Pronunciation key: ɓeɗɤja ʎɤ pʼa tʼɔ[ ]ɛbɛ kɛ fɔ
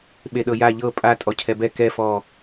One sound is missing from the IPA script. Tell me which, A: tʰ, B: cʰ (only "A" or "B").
B